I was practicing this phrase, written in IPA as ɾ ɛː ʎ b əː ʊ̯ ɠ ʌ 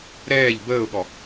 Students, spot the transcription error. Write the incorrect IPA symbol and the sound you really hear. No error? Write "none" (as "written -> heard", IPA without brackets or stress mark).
ʌ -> ɔ